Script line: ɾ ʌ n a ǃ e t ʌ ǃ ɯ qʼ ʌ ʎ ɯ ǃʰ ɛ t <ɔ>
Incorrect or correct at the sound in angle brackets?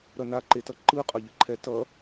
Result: incorrect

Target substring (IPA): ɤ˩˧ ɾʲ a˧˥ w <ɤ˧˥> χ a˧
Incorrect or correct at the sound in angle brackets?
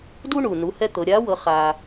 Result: correct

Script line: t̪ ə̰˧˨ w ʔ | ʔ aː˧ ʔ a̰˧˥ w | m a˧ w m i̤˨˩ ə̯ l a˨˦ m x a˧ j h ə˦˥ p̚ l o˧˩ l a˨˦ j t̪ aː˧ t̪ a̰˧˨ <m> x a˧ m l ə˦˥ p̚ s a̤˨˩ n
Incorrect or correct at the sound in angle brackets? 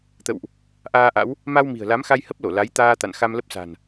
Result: incorrect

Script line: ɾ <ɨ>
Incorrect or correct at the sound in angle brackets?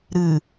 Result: correct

